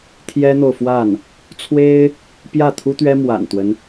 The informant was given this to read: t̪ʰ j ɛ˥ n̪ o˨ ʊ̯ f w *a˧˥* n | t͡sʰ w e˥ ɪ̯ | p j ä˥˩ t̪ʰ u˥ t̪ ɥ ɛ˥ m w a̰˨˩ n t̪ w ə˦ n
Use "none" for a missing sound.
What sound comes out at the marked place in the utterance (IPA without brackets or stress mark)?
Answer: a˥˩